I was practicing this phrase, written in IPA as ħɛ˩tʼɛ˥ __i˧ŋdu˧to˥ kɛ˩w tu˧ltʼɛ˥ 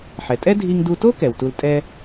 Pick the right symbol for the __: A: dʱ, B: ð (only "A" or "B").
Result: A